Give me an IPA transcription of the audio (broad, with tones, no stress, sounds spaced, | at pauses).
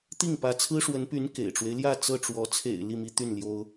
t̪ i˥˩ ŋ p ä˧˥ t͡sʰ ɹ̩˥ ʂ w ə˧˥ n p y˧˥ n k ḛ˨˩ ɪ̯ ʈ͡ʂ w e˦ ɪ̯ l j ä˥˧ t͡s ɤ˥˩ ʈ͡ʂ w ɔ˧˥ t͡sʰ ḛ˨˩ ɪ̯ l i˥˩ m i˥ t̪ y˥˩ n l j o˥ ʊ̯